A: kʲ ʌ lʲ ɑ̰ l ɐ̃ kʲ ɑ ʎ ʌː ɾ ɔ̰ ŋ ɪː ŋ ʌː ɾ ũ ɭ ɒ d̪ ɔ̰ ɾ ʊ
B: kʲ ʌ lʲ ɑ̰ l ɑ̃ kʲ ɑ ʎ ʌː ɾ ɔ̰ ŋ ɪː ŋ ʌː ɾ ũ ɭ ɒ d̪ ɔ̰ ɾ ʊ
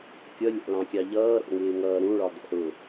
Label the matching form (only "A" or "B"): B